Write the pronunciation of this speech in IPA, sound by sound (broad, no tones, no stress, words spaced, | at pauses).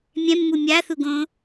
mʲɛ̃mːu mʲaθuɡõ